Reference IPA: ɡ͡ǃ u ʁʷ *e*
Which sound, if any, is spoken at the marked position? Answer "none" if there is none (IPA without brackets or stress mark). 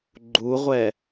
ɛ